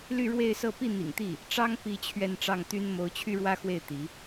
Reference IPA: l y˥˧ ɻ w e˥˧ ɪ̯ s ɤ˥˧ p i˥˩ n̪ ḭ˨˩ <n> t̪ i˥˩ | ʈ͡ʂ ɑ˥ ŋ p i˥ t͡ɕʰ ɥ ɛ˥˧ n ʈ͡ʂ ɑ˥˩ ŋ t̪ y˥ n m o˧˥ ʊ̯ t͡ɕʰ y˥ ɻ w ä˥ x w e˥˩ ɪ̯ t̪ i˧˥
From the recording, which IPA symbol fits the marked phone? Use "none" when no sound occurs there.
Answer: ŋ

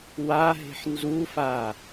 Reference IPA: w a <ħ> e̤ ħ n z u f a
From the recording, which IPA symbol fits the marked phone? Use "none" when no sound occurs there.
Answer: ɦ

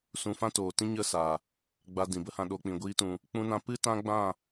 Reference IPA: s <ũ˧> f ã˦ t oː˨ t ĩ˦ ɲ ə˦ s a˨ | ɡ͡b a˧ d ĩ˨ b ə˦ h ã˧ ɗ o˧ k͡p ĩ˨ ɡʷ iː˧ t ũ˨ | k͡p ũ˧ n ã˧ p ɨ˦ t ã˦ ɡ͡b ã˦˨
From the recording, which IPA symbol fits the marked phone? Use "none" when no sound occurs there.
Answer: ũ˧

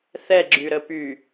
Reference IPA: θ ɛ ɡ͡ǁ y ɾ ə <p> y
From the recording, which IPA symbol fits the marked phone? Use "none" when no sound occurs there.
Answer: p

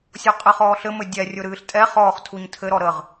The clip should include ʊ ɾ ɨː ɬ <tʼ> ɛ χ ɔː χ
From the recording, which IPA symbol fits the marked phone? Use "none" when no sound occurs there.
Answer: tʼ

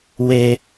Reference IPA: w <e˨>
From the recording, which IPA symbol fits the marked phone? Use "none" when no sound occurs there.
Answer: e˦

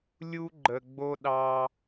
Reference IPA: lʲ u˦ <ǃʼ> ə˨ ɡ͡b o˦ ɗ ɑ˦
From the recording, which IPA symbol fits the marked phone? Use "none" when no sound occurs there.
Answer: ɡ͡ǃ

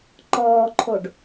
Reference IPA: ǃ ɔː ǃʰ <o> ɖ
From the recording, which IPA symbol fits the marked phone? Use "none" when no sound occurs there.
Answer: o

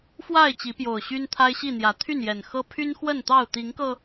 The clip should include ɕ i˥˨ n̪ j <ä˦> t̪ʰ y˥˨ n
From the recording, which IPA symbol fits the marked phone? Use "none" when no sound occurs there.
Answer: ä˨˦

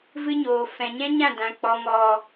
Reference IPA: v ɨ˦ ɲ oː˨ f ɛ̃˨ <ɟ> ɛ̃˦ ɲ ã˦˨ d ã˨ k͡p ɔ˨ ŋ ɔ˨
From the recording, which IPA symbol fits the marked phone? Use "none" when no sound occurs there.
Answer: ɲ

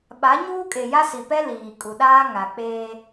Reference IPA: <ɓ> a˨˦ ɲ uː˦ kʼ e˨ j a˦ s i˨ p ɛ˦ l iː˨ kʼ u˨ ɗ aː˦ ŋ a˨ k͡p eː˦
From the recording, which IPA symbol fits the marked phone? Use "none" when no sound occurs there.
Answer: ɓ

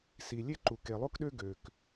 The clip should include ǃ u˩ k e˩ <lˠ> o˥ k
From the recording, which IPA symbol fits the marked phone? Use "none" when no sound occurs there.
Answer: lˠ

